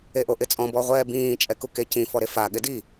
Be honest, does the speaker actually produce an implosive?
yes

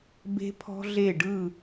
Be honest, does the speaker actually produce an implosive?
no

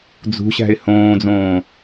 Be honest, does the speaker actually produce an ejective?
no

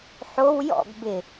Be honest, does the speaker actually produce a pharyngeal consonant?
yes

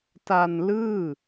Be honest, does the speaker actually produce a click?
no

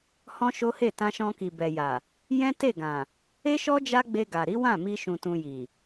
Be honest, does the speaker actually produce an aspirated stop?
no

